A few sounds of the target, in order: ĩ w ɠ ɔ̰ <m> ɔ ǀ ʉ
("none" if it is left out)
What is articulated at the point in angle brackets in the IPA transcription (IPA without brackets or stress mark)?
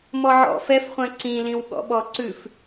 ɓ